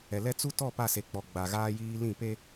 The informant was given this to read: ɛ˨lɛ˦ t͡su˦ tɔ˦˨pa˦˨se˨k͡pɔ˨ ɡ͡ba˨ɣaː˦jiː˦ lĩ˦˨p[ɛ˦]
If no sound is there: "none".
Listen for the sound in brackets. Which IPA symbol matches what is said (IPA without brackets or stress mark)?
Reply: e˦